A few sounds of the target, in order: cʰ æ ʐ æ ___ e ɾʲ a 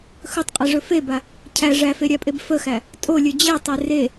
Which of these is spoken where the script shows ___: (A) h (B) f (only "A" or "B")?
B